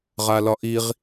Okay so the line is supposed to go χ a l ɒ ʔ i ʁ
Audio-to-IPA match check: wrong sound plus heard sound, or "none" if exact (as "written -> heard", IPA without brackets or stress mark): χ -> ʁ